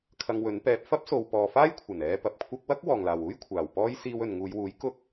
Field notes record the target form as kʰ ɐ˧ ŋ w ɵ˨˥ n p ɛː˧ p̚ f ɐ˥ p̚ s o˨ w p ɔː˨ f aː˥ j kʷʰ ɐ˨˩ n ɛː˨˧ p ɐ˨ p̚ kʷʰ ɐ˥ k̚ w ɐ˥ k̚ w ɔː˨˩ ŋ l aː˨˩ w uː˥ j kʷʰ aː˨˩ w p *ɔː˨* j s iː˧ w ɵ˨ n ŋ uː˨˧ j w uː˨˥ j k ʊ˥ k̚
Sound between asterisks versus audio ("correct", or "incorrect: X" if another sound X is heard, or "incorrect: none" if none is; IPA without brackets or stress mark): incorrect: ɔː˥